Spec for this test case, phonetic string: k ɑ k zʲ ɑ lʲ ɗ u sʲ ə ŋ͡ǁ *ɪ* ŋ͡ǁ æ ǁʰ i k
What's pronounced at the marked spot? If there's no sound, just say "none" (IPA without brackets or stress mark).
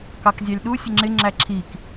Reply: ɪ